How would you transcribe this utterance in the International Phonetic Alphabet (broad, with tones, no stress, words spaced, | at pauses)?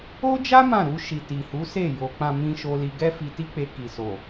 o˦d͡ʒa˦ mã˦˨ ɾu˧ʃi˨ ti˨hu˨˦se˦˨ jo˨ k͡pã˨mĩ˨ ʃo˧li˧ɡɛ˦fi˧ ti˧k͡pe˨ ki˨so˨